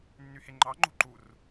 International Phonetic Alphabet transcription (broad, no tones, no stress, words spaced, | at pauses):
nːyheŋ͡ǃɑŋ͡ǃo̤ ǃur